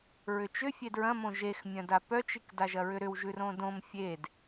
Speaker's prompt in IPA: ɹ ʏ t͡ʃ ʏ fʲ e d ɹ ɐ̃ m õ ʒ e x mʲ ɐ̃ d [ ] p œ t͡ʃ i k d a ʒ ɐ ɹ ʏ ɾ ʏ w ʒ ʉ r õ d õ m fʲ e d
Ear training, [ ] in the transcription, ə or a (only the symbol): a